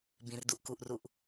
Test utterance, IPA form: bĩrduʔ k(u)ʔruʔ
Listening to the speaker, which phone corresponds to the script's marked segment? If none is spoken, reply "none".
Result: u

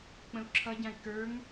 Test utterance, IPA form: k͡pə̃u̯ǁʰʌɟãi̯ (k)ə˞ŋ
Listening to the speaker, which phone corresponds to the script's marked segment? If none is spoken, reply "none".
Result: k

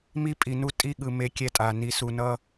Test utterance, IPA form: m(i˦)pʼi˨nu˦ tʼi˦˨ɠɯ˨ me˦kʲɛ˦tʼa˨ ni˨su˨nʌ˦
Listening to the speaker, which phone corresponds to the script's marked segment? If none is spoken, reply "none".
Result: i˦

